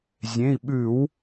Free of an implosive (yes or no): no